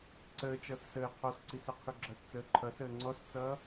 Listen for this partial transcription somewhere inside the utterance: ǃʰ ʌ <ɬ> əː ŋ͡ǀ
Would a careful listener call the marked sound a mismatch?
yes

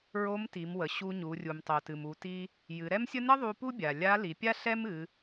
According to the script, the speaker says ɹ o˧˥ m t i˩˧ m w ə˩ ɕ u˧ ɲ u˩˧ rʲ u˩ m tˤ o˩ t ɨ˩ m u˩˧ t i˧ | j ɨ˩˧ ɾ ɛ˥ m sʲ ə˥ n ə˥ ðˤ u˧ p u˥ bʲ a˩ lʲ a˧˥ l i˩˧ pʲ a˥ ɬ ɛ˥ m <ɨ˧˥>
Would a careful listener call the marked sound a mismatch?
yes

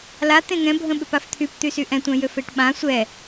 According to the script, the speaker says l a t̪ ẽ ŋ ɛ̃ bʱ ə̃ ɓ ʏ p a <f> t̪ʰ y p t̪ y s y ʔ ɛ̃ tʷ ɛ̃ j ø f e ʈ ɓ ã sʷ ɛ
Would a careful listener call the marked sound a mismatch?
no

